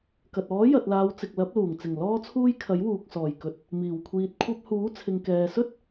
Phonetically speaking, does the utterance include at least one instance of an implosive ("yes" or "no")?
no